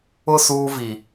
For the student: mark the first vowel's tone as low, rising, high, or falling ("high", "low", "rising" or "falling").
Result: falling